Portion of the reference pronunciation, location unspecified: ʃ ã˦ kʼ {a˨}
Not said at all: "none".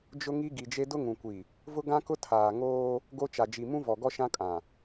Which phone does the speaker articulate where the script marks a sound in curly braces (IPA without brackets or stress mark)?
ã˨